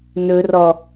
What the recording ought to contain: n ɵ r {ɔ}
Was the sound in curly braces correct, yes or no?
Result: yes